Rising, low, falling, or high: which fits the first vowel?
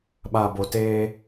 low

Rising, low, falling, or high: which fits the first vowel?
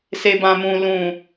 low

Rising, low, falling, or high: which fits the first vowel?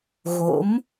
rising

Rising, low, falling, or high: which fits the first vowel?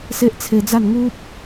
high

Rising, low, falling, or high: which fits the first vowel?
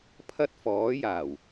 high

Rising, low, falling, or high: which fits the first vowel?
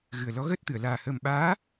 low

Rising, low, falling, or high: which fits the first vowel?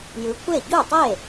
rising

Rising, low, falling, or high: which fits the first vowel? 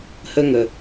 high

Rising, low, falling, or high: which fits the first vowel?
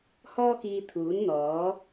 high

